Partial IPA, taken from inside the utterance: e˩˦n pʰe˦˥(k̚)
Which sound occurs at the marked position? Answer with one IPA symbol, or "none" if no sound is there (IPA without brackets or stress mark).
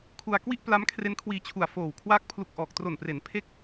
k̚